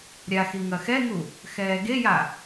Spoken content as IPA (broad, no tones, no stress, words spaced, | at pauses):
ɾʲaxi ŋɐxɛŋu | xɛːɡeja